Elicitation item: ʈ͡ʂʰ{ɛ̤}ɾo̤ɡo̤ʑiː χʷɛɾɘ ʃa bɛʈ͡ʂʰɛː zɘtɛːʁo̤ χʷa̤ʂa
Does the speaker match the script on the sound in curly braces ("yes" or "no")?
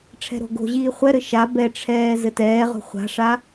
yes